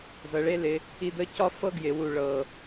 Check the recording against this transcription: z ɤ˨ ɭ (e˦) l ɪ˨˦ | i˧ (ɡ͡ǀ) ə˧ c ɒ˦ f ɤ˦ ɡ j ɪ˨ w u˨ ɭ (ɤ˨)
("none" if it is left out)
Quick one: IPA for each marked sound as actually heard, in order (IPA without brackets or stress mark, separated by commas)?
e˦, d̪, ɤ˨